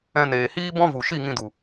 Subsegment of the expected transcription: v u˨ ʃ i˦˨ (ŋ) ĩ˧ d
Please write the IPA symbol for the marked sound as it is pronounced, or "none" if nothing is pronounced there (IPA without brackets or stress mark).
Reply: ŋ